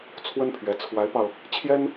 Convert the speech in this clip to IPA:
t͡sʰ w ə˥ n pʰ ɥ ɛ˧˥ t͡sʰ w a˧˥ ɪ̯ p ɑ˧ ʊ̯ | t͡ɕʰ j ɛ˥ n

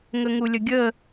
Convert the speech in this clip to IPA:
ŋ ə ŋ u lʲ ə ɡʲ ə

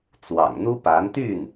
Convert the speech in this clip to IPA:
t͡s w ɑ̰˨˩ ŋ n̪ u˥ p a˧˥ n t̪ y˥˩ n

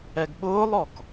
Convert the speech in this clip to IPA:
ɛ ɡ ɓ ʊː lˠ ɔ k

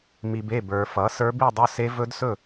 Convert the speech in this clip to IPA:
m i˨ b e˥˩ b ə˞˨ f ʌ˩˥ s ə˞˦˥ b i˥˧ dˤ ɵ˦˥ s e˦˥ v ɵ˦˥ d s ɵ˥˩

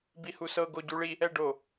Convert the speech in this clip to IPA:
b i h u s ɤ ɡ o ɟ u ɭ i | ɛ ɖ o

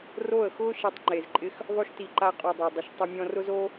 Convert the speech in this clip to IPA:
r o˦˨ ə̯ x ʊː˦ ʃ e˧ tˤ ŋ͡ǃ e˨ z ǃʼ ɪ˧ x | ðˤ o˧ ʃ t i˨ ǃ a˧ qʼ o˨ dˤ a˨ dˤ ʊ˨ ʃ tˤ ʊ˧ mʲ ɔ̃˧ r ʊ˦ z o˦

